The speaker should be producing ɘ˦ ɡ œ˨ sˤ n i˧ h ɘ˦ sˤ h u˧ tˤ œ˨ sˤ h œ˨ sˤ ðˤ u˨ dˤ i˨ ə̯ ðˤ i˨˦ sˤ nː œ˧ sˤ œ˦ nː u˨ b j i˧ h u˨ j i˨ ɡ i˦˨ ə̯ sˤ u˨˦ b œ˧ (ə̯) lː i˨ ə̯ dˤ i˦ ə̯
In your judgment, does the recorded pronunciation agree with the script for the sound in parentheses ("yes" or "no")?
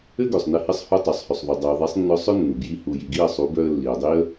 yes